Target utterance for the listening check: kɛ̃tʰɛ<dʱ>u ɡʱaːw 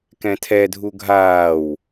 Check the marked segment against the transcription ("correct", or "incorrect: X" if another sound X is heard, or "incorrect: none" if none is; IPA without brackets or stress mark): correct